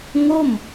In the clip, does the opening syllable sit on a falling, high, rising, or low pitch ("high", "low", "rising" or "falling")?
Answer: falling